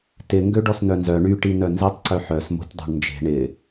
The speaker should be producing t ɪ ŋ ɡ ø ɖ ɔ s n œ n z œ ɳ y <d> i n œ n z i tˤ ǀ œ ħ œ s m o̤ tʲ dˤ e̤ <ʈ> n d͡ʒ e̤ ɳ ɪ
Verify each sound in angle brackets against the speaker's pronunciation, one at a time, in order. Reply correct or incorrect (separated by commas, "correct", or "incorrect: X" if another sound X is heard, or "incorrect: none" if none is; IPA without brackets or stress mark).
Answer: incorrect: ʈ, incorrect: ɳ